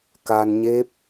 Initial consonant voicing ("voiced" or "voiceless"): voiceless